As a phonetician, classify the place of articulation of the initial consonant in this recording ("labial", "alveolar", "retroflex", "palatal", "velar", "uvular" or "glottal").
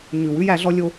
palatal